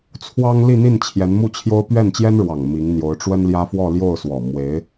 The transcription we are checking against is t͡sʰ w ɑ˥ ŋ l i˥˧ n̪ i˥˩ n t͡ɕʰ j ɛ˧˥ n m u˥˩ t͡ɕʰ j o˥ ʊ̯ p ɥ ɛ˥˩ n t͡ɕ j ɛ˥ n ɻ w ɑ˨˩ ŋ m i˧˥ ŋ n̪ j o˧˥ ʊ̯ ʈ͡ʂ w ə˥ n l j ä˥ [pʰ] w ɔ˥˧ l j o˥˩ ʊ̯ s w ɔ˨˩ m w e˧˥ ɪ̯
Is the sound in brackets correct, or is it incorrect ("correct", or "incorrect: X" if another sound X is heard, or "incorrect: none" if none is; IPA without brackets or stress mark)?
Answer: incorrect: f